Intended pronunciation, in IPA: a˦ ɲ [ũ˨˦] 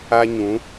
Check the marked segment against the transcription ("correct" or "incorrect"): correct